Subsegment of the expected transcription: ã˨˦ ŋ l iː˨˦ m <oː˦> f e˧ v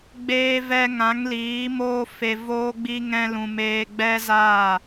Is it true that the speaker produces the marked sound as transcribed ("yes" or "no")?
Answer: yes